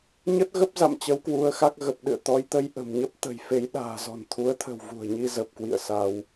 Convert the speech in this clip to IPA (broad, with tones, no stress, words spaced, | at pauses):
ɲə˦˥t̚ɣə˦˥p̚za̰˧˨m t͡ɕə˨˦wkwu˨˦ə̯xa˦˥k̚ ɣə˨˩p̚ɗɨ̰˧˨ə̯ t̪ɔ˨˦jt̪ə˧j ʔə̤˨˩mɲə˦˥p̚t̪ə̤˨˩j fe˨˦j ɗa̤ː˨˩zɔ̤˨˩n t̪ʰu˨˦ə̯t̪ʰə̤˨˩w vṳ˨˩ə̯ ɲi˧zə˨˩p̚kwḭ˧˨ə̯ sa˧w